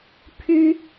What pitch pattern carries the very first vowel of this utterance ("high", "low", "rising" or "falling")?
high